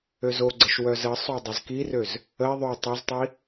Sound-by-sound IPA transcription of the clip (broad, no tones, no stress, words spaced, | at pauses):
øzoɡ͡ǀəʃ wœzəsˤo dˤœzkirøz | əi̯ ðˤø tˤɛztˤi